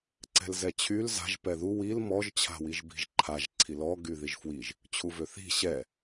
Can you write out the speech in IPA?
ǀɛ̤lzɛt͡ɕʰyl za̤ʒ pɛðu wil mɔʒ t͡ɕʰa̤wiʒbi̤ʒǃʰaʒ ǀʰilɔ ɡyðiʒfwiʒ | t͡ɕʰuvøθi̤ ɕɛ

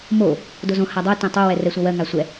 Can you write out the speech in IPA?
mo | dozõ hadˤɜ tɛ̃tˤo wɛrɛsʷawɜ ŋasʷɛ

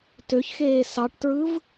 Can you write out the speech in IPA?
tøçxeː sɑʈtɹɯv

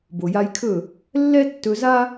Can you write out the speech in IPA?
bo˨ja˧jkʰɵ˦˨ | lːɛ˦ tːɵ˧za˦

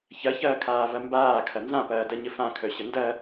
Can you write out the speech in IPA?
çɐçɐːkʰaːvɐ mbaːkʰɐ nzãpɐːdɐɲə fãkʰœɕə ndɐ

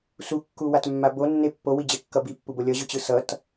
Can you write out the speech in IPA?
sukːuwatmːa bonːe pːowid͡ʑekːʌ bipːubo lʲʌʑɯt͡ɕɯ sʌt

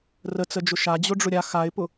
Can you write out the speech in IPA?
rət͡səd͡ʒʊ ʃad͡ʑʊɖ͡ʐʊ ɾʲa xaɪ̯pʊ

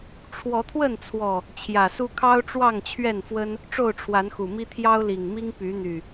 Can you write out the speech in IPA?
ʈ͡ʂʰwɔ˨˦t̪ʰwə˥˨nt͡sʰwɔ˨˩ | t͡ɕʰjä˨˩su˦ kʰɑ˦ʊ̯ʈ͡ʂwɑ˥˨ŋt͡ɕʰɥɛ˥˨nfwə˦n | ʈ͡ʂo˥˨ʊ̯ʈ͡ʂʰwa˨˦nxu˨˩mi˦ t̪ʰjɑ˦ʊ̯li˨˩ŋmi˦ŋ py˨˦n̪y˨˩

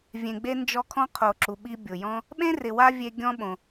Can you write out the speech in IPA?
vʲẽ˨ ɡ͡be˥nd͡ʒɔ˦kʰɔ̃˥ qʰo˨ǁu˨ɓi˦ bʲʊ˩jɔ̃˦ | ɓẽ˥rɪ˨wa˦ vʲe˦ɡʲɔ̃˥ɓõ˩

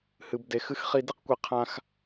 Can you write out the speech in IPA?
hɨ˧bde˧xɨ˦xχi˦ di˦qkʷi˧ qʰã˦x

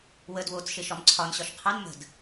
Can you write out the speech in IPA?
wəd wot͡s ʃeʃɒmǀʰɒn ɕɒʃqʰɑn mə̤d

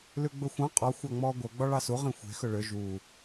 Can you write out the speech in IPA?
lʉɡ͡bɵxʷɑ̃ qʼɔ xʷɑŋ͡mɔːɡʷœ ɡ͡bɔɭɑsu ʁĩxʷe̤ xɵɭø ʒuː

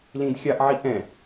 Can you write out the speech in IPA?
lĩdxʲaʔ ʕiʔɛ̃

